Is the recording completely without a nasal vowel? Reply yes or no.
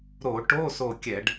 yes